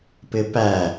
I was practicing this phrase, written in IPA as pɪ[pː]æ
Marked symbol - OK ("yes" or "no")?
no